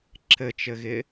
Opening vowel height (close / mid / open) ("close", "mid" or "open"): mid